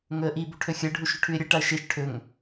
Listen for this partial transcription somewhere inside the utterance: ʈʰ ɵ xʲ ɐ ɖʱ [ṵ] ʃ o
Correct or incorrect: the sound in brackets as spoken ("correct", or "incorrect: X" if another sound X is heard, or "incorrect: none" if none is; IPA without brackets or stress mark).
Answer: incorrect: u